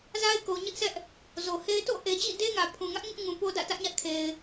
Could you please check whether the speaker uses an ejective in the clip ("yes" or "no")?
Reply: no